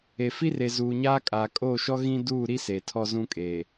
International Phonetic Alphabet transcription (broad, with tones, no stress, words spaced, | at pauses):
e˨fi˦r e˨zuː˨ɲaː˦ kʼaː˨kʼoː˦˨ʃɔ˦ ɣĩ˦ duː˦˨ɾi˦ se˨ tʰɔ˦zũ˦kʼeː˨